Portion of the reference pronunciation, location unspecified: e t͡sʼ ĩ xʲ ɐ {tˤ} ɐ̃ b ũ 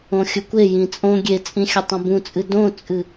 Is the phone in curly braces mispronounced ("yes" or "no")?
no